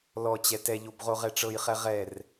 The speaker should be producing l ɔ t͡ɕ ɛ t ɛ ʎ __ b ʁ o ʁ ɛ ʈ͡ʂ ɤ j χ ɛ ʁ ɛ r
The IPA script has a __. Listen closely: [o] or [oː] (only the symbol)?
o